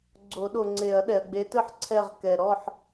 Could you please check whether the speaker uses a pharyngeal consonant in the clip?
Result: yes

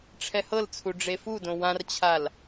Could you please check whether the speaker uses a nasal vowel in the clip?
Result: yes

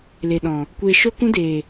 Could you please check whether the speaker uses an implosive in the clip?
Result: yes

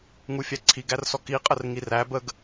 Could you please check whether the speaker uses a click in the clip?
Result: yes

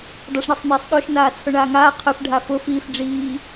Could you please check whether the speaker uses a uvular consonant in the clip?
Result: yes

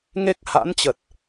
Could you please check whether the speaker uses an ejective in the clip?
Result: no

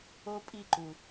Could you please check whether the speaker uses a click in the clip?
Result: yes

